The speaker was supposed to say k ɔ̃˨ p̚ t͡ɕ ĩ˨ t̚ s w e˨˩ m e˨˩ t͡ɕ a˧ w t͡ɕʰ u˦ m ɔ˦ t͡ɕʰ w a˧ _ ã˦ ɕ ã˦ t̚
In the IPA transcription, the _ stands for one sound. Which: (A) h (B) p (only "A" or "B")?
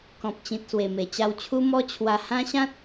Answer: A